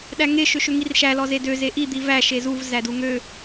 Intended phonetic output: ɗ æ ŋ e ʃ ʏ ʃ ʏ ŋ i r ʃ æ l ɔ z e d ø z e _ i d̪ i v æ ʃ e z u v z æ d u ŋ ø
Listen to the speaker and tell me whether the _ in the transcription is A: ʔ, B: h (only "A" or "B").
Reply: A